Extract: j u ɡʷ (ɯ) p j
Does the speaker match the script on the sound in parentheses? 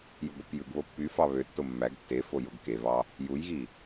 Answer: yes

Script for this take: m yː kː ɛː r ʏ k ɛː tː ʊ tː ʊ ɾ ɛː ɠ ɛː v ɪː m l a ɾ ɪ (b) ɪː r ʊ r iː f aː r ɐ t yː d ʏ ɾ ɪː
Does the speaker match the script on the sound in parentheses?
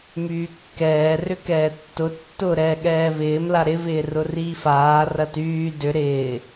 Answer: no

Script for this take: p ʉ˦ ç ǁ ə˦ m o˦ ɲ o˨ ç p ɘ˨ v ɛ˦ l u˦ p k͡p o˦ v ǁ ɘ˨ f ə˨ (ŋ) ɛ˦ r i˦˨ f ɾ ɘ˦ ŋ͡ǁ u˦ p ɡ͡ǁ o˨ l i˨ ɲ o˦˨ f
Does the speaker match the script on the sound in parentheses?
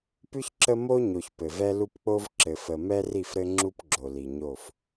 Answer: no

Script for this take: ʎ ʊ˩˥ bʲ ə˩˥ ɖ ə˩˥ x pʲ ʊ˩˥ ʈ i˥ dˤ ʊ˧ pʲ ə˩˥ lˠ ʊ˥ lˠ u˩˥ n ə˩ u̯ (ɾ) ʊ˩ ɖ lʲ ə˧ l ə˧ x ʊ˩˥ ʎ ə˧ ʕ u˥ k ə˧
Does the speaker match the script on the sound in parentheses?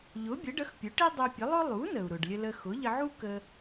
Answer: yes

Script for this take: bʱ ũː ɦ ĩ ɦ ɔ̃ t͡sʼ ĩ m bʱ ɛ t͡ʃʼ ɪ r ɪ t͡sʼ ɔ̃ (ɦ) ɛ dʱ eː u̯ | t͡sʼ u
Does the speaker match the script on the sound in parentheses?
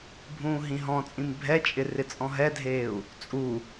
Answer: yes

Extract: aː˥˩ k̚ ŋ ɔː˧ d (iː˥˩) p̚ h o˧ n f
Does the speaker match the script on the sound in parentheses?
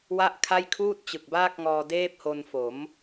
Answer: no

